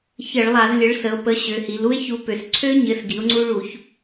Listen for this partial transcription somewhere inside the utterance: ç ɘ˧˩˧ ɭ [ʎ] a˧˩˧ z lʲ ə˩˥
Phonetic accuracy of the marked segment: incorrect: lˠ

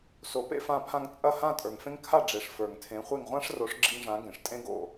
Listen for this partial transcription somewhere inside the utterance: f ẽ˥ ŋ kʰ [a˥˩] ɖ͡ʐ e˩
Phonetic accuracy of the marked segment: correct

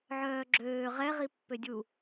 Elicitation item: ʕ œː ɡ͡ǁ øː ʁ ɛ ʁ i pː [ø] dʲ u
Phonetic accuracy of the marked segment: correct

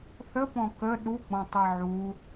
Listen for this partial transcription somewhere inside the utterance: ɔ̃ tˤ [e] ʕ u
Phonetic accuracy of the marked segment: incorrect: ɛ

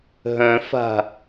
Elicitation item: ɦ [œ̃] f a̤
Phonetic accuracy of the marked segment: correct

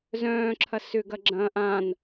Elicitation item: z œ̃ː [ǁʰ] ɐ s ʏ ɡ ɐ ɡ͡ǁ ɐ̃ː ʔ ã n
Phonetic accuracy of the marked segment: correct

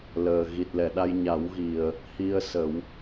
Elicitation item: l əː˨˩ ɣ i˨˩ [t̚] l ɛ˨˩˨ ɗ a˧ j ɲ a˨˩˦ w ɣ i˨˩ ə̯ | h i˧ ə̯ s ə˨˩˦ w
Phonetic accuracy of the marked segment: correct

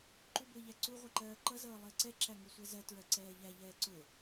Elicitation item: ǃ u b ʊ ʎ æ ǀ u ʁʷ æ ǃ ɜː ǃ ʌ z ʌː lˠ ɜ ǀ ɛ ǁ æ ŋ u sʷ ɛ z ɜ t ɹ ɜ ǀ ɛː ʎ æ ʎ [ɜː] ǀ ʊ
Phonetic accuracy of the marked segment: incorrect: ɛː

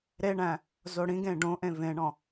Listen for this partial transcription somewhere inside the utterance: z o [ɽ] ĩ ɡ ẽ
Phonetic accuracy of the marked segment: correct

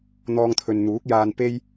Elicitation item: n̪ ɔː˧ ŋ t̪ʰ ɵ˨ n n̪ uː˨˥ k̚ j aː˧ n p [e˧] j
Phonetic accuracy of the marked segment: incorrect: e˥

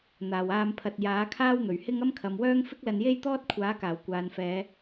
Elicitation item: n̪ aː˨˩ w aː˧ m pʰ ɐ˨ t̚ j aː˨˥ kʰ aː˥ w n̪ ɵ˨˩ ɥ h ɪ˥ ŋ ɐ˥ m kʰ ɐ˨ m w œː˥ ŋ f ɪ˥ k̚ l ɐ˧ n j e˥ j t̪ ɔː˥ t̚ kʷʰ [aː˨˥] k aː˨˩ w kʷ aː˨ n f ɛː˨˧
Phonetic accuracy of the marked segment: correct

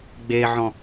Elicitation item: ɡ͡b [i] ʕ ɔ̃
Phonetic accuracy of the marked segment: incorrect: e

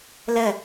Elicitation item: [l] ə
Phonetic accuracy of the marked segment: correct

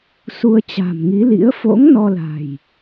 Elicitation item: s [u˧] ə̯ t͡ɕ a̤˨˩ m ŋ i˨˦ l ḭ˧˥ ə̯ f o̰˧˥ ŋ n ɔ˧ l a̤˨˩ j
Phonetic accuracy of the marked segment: correct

